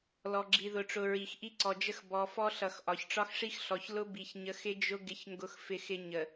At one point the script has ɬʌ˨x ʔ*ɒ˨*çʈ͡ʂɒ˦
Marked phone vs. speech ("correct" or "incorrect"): correct